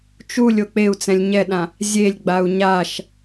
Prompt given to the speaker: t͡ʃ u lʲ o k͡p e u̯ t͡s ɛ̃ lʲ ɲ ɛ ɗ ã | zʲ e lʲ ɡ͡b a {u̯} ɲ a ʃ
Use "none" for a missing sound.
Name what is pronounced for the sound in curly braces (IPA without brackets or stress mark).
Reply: u̯